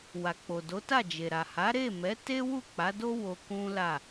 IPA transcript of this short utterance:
wa˨k͡po˨do˨˦ta˦˨ d͡ʒe˨ɾa˨ ha˨˦ɾe˦˨mɛ˨˦ te˦wu˦˨k͡pa˨˦ do˦ wo˧kũ˦la˦˨

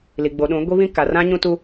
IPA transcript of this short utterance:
li˨ɡ͡bo˨ɗũ˨˦ ɡʷi˦βĩ˦ ka˨rã˦ɲũ˦tu˦

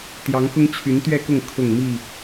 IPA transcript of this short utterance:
t̪jɑ˨˦ŋxʊ˦ŋ t͡ɕʰy˨˦nt̪ɥɛ˥˨kʊ˥˨ŋ kʰʊ˥˨ŋmi˥˨

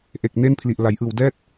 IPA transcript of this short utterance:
ʔe˨˩k̚ne˥˩npʰli˨˩ʔ la˩˦jʔɯː˨˩wdɛː˥˩t̚

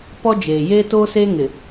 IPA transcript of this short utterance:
pɔ˦d͡ʒeː˨ jeː˦toː˦seː˦ ŋɪ˨

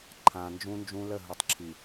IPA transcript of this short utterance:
ǃʰã˨nd͡ʒũ˦nd͡ʒũ˦lə˦˨ ɦu˨tˤǁʰi˨

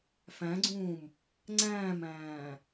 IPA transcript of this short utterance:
fæ̃ɡ͡ǀũːm | ŋ͡ǀæ̃ːmæ̃ː

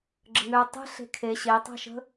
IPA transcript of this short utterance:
ɡ͡ǁəŋøɐ̯ tˤə̤ ɬe̤kʰe ɕetˤa̤ʃə̤

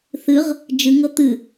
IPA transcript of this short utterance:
θɨʁ | d͡ʒɨŋɤ t̪ɨ

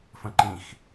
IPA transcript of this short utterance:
fə̃ǃĩx

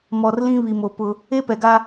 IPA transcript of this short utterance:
mɔ˨rlĩ˦ βi˨mo˨pʊ˦ | e˦pɛ˨ɡa˦

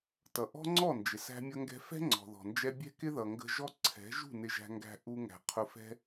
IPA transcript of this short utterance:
tʌ˨ʔɔ̤˦ŋ͡ǀɔ˦˨nd͡ʒɪ˨ sæ̤˧mʲʌ˧ŋɡɛ̤˧fɛ̤˦ ŋ͡ǀɔ̤˨ðɔ̤˨nd͡ʒɛ˦ bʲɛ̤˦kɪ˦ðʌ˨ ŋɡə̤˧ʒɔ˦ ǀʰɛ̤˨˦ ʒṳ˦˨ nɪ˧ʒæ̤˧ŋɡæ̤˧ ʔu˧ ŋæ̤˧qʰʊ˦ fɛ̤˦

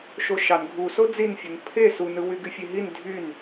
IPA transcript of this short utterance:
ʃoʃɑn ɡʱuso d͡zinfʲon pʰe sunɯ wyɡyfʲeɦin dʱyn

